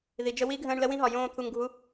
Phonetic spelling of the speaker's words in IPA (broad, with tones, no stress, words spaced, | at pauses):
ði˨d͡ʒə˧ wi˦ɡʱə̃ː˧ɳ lə˦wĩ˦ ɦɒ˨jõː˧ t̪ʰu˧ŋɡʱu˦